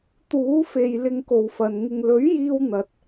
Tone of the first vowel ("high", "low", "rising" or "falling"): rising